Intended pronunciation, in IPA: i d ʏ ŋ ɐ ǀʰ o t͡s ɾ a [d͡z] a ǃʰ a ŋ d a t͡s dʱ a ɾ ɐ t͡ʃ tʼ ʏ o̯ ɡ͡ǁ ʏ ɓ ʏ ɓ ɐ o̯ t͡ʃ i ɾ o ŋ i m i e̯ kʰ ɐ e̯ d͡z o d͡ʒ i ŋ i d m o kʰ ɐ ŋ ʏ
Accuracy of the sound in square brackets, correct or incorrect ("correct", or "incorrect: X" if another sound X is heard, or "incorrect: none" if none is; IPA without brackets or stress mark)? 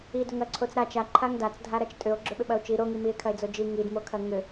incorrect: t͡ʃ